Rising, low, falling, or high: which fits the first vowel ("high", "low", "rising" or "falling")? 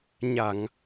low